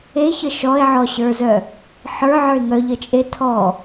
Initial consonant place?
palatal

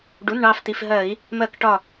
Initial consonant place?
retroflex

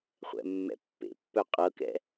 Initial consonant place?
uvular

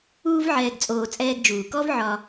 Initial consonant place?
labial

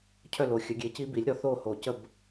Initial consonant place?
palatal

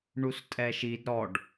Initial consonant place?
retroflex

